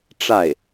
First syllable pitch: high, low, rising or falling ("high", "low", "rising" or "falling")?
falling